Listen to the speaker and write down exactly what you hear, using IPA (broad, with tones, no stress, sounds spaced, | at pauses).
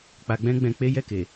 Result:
k͡p a˧ ɡ͡b ɛ̃˦ ɡ͡b ɛ̃˧ k͡p e˦ j ɛ˦˨ k e˨